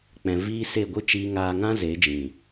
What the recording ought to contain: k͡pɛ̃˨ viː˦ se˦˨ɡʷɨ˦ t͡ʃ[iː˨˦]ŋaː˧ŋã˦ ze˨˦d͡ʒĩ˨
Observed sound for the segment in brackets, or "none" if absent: iː˧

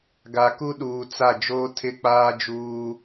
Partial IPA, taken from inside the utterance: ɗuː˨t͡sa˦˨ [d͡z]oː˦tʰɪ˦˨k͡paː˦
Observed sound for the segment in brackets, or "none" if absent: d͡ʒ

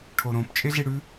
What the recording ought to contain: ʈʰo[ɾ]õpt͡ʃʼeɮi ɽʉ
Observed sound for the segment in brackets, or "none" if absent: ɾ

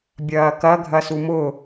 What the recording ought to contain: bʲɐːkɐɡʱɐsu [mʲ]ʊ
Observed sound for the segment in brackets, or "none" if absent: m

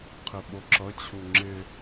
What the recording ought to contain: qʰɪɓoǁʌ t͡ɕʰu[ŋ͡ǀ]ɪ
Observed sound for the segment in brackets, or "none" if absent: ŋ͡ǁ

